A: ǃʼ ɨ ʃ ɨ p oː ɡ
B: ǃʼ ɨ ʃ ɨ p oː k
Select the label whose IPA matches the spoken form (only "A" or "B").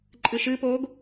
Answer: A